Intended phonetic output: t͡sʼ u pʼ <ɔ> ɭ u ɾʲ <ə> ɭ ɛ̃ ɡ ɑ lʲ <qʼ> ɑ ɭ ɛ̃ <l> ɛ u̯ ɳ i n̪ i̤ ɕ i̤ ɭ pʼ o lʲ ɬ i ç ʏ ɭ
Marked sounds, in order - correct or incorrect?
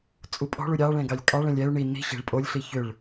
incorrect, incorrect, incorrect, incorrect

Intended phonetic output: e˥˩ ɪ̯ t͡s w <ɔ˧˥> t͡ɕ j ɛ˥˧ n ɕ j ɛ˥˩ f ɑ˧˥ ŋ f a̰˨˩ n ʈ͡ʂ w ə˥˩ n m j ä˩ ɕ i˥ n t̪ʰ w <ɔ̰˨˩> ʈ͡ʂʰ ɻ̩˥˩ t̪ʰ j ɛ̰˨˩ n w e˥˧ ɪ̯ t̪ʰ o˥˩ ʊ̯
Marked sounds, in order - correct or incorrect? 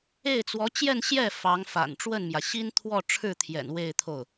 correct, incorrect

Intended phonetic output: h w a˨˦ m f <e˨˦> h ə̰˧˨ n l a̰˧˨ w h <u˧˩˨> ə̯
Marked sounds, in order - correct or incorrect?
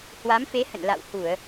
correct, correct

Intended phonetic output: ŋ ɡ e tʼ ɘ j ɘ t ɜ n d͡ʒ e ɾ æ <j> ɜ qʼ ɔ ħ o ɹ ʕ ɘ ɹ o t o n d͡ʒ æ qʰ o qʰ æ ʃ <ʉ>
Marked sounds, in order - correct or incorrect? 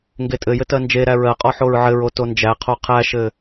incorrect, incorrect

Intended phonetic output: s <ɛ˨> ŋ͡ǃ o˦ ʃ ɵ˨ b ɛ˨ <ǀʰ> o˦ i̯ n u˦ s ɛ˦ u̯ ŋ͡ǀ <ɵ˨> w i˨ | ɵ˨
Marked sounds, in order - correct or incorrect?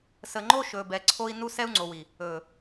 incorrect, correct, incorrect

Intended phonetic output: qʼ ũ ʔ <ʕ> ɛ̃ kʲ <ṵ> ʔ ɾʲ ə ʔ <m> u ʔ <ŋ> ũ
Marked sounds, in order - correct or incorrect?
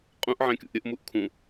correct, correct, correct, incorrect

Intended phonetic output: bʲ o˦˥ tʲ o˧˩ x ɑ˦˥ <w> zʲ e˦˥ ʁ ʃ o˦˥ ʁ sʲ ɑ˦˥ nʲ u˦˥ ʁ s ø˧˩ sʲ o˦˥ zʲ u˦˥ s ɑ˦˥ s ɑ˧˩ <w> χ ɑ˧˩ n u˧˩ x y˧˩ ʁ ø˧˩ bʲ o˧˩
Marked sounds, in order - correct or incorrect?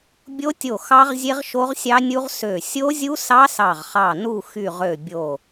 incorrect, incorrect

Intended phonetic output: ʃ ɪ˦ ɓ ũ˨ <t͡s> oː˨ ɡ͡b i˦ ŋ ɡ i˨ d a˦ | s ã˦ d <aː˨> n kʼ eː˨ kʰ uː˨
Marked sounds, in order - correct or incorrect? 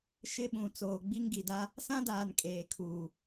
correct, correct

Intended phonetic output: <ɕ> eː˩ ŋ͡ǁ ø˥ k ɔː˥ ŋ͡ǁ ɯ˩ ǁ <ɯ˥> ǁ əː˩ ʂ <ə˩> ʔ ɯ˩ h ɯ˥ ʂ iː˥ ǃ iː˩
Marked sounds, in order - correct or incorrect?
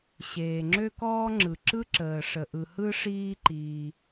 correct, correct, correct

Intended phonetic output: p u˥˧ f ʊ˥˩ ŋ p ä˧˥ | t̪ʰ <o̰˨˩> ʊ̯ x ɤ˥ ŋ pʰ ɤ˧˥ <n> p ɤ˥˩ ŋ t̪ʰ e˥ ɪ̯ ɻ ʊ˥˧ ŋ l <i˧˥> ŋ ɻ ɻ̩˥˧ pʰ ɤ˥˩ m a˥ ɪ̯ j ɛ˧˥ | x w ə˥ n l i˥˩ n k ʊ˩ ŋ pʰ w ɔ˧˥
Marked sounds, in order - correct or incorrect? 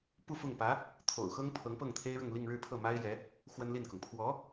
correct, incorrect, incorrect

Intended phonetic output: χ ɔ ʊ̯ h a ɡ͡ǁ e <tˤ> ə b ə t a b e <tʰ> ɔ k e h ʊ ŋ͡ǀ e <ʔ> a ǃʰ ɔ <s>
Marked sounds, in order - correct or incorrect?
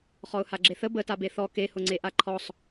incorrect, incorrect, correct, incorrect

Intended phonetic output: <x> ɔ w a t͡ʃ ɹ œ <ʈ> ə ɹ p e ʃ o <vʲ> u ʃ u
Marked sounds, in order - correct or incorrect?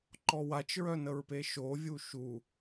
incorrect, incorrect, correct

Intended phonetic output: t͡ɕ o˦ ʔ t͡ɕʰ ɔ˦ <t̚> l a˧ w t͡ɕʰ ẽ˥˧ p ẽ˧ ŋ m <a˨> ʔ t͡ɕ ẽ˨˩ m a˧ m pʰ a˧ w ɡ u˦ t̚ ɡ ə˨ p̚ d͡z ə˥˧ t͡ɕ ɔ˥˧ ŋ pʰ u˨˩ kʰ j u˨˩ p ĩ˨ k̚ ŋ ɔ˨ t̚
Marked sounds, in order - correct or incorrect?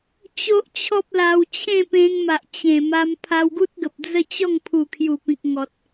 incorrect, correct

